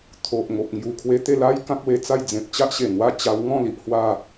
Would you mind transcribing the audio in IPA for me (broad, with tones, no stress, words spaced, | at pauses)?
t̪ʰo˨ʔ ŋo˨p̚ ŋju˨˩kʰwe˧t̪e˥˧ la˦j kã˦k̚we˧t͡sa˥˧j d͡zẽ˨p̚t͡ɕa˦ʔɕe˨˩nwa˥˧ t͡ɕa˧wŋɔ̃˥˧li˨ʔ hwa˥˧